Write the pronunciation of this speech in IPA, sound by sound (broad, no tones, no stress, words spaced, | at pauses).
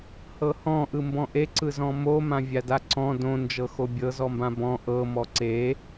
hɤhɔ̃ ʔɯmbɔ̃ʔe ǀɯzɔ̃mo mãvʲadaǀɔ̃ dõ nd͡ʒɤxobʲɤ zɔmbãbɔ̃ ʔɤ mɔǀe